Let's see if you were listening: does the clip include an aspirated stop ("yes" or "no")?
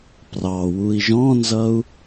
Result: no